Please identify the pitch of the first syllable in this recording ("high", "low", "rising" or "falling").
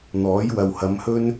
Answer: rising